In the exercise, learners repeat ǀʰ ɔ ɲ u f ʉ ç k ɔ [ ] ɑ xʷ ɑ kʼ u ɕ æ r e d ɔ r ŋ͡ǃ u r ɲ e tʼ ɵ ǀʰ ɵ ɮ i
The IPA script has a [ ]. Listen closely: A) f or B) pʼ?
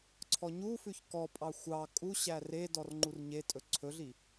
B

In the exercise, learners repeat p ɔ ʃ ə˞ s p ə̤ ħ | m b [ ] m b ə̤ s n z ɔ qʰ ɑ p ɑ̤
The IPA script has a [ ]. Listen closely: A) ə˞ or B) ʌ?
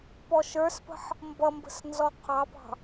B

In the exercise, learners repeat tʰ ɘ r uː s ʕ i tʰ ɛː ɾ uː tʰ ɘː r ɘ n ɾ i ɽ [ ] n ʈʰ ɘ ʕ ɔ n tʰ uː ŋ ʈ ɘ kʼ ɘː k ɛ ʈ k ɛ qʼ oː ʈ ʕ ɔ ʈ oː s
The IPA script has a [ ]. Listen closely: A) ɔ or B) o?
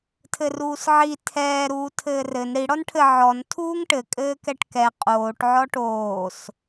A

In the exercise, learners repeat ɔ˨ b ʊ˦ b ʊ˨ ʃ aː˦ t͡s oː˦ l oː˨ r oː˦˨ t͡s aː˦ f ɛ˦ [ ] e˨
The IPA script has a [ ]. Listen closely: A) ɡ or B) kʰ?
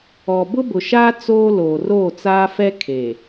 B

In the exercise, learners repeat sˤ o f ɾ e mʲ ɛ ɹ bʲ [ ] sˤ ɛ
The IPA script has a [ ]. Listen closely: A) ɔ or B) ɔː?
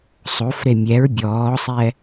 B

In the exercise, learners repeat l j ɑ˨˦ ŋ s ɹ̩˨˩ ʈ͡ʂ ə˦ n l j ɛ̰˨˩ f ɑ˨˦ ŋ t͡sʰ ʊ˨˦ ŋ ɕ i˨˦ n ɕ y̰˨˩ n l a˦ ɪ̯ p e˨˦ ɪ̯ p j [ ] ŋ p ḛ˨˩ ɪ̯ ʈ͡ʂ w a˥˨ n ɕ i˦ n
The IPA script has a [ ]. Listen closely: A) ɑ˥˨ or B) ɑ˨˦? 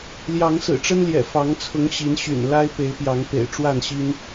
B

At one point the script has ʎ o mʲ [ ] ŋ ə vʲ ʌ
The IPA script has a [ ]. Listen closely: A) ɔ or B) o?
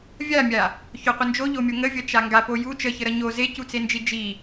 B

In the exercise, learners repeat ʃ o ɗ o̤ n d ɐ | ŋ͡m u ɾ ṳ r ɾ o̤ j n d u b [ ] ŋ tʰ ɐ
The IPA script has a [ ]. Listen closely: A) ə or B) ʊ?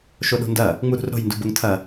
B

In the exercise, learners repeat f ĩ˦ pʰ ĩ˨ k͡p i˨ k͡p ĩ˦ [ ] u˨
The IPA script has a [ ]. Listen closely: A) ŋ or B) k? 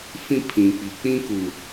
B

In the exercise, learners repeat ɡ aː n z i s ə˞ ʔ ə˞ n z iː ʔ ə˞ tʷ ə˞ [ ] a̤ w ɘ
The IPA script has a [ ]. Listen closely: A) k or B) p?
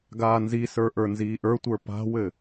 B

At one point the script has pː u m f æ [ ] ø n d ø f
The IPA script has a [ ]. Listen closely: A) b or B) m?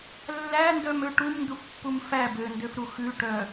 A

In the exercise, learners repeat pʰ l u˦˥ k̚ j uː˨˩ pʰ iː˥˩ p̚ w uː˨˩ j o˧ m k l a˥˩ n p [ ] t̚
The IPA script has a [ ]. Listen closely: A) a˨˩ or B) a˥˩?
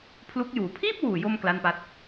B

